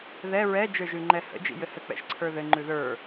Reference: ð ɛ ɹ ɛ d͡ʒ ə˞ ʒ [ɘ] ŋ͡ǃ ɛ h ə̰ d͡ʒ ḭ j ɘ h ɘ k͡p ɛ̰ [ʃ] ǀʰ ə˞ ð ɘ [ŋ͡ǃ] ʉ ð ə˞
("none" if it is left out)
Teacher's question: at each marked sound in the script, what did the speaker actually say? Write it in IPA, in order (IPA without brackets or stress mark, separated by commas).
ʉ, ʃ, ŋ͡ǃ